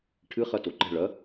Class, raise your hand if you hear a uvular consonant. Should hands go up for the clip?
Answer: yes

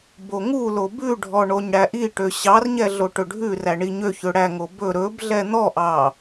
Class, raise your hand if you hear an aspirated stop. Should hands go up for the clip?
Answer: no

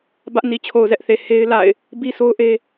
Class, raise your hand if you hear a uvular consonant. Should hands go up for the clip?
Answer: no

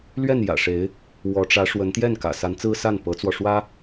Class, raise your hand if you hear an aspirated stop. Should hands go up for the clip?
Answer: no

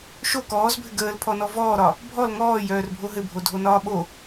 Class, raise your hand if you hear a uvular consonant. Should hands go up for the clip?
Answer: no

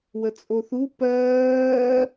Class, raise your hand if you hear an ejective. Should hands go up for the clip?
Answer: yes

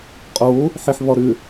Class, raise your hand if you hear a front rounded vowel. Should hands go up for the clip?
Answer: yes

